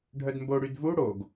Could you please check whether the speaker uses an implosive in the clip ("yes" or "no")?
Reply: no